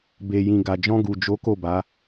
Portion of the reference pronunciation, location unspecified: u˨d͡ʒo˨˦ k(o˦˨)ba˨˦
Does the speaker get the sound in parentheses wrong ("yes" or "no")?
no